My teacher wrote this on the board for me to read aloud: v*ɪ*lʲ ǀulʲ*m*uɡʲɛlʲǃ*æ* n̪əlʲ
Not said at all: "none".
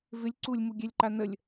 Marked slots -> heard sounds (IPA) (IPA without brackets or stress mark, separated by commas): ɪ, m, a